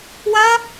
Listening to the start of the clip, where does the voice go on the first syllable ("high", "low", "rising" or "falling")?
high